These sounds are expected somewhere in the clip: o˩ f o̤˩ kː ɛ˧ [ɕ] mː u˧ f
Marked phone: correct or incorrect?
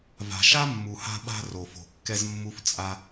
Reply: incorrect